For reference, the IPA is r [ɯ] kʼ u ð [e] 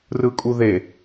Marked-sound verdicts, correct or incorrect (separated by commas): correct, correct